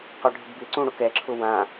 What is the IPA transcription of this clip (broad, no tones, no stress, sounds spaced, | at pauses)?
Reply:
q ɔ ɖʱ ɪ ɡ b ɪ ǀ ũ ɽ ʊ k ɛ ǁʰ ʊ w ã